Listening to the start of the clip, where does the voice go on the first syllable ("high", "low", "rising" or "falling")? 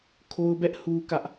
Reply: high